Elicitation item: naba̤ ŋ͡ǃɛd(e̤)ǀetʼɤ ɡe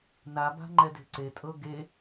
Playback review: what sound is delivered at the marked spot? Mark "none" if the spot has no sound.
e̤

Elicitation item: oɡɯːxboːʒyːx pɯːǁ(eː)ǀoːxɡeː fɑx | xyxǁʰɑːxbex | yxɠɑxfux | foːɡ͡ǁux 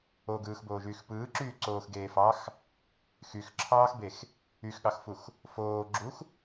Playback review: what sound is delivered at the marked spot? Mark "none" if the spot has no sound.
yː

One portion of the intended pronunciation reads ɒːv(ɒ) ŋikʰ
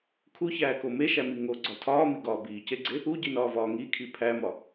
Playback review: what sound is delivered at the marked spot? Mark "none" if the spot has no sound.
ɒː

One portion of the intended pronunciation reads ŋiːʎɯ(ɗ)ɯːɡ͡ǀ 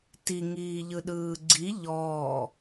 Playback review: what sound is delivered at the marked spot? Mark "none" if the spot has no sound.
ɗ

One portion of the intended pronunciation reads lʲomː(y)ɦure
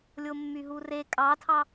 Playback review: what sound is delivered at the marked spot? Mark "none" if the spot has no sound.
y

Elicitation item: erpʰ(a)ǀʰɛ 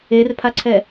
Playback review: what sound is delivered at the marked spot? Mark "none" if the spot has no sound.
a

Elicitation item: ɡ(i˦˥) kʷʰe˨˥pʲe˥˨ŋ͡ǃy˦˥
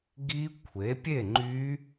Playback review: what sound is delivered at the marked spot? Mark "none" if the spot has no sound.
i˦˥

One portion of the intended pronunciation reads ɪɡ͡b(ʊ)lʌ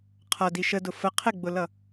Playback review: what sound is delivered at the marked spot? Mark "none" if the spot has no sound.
ʊ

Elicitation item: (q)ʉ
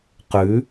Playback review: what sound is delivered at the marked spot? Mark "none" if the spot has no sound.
q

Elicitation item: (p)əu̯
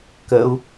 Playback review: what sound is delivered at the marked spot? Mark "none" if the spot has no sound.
k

